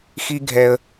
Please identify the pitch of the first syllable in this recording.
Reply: high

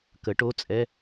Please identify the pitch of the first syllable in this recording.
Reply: rising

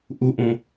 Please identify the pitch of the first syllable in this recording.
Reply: high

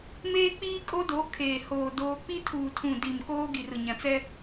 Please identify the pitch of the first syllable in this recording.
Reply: high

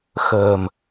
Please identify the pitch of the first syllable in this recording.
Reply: low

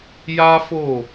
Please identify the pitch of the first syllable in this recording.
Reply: high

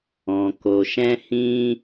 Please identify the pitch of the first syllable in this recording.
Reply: low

